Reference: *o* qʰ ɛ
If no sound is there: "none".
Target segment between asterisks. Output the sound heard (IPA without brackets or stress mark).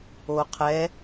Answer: o